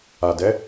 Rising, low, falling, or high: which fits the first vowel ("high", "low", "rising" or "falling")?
low